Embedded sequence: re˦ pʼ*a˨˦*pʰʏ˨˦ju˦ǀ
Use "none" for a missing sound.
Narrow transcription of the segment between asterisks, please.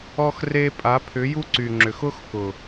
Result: a˨˦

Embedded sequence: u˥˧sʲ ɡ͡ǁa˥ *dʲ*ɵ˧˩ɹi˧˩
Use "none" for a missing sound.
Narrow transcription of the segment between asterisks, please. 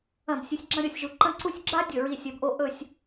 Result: dʲ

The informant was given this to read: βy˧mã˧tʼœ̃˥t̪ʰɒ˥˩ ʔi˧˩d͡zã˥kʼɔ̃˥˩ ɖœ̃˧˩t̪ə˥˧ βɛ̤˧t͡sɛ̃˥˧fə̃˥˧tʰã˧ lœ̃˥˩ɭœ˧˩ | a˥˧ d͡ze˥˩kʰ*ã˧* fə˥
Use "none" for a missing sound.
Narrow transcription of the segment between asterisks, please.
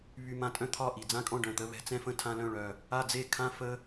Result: ã˥˧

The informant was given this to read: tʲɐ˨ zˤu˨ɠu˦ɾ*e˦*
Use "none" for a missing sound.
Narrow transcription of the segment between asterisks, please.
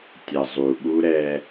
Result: ɛ˦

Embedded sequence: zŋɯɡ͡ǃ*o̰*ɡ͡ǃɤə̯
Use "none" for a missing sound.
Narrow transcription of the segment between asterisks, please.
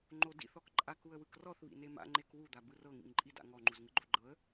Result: o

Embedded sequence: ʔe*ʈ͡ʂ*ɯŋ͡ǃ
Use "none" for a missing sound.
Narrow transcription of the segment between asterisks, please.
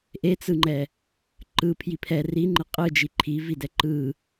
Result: t͡s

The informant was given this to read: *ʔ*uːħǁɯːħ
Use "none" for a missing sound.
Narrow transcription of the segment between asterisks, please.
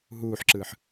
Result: ɦ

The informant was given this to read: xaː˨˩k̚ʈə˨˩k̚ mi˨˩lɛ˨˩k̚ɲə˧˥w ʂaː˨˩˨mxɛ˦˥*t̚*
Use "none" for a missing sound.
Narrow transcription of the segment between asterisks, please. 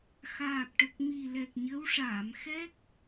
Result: k̚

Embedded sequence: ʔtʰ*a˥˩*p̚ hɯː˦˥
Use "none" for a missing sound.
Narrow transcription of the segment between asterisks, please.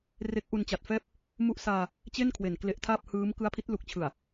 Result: aː˥˩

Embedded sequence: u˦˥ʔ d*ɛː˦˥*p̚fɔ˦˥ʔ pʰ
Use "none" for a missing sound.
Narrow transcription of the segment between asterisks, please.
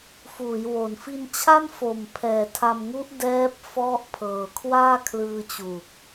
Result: ɛː˦˥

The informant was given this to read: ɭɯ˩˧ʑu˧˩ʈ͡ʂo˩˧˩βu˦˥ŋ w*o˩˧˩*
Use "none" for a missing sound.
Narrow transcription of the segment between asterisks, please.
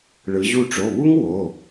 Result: o˩˧˩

